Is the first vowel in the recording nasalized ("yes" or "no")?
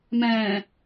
yes